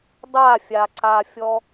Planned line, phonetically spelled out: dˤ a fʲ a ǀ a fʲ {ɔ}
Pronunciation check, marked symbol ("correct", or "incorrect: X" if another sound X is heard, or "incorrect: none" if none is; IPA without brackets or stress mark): correct